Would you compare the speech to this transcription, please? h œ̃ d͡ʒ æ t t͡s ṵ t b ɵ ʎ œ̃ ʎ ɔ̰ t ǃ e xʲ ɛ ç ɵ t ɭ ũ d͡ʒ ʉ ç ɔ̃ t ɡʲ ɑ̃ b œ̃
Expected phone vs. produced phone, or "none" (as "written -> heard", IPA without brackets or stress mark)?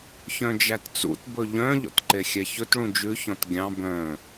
h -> ç